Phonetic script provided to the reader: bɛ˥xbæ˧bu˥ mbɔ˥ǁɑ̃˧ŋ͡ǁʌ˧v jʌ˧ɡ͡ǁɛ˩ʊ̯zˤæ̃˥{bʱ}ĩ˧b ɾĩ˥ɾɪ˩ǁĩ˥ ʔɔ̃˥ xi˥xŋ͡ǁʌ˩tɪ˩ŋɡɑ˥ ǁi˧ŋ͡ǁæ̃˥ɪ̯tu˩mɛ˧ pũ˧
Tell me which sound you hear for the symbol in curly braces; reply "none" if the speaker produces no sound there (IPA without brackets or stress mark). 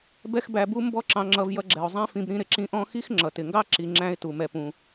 f